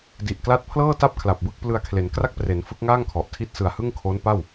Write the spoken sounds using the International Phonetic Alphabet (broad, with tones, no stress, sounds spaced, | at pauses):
d i˨˩ ʔ k l a˦˥ t̚ pʰ l ɤː˥˩ t a˥˩ p̚ kʰ l a˨˩ p̚ b ɯ˥˩ k̚ p l ɯ˧ a̯ kʰ l e˩˦ n k r a˥˩ k̚ p r e˩˦ n f ɯ˦˥ k̚ ŋ aː˥˩ ŋ kʰ ɔ˨˩ ʔ tʰ i˥˩ t̚ s ɯ˨˩ a̯ h ɯ˥˩ ŋ kʰ o˦˥ n p a˥˩ w